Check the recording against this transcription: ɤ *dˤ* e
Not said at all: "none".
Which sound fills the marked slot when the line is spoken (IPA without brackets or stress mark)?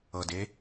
d